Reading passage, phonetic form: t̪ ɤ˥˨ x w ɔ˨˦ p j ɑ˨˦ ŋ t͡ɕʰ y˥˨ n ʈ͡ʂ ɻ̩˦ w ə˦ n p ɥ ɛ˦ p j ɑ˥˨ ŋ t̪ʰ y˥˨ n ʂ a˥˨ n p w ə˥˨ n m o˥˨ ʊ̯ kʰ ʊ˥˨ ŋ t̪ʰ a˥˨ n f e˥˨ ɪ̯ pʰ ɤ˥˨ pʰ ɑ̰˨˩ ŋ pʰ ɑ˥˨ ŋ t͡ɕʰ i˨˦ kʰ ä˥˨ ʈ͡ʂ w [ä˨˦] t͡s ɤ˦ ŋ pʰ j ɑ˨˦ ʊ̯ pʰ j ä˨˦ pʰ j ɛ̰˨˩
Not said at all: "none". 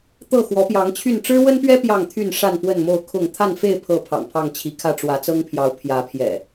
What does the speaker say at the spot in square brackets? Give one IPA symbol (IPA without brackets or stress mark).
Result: ä˨˦